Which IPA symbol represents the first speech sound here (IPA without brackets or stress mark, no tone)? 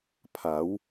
pʰ